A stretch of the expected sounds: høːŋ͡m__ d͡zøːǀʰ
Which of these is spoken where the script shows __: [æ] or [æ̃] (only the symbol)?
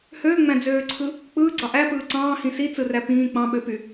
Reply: æ̃